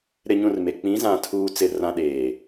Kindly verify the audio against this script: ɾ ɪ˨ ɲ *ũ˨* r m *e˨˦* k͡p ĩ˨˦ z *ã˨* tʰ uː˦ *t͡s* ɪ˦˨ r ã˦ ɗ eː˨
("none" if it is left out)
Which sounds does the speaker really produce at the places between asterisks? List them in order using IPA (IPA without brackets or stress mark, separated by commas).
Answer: ũ˨, e˨, ã˨, t͡s